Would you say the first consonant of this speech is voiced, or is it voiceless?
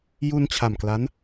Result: voiced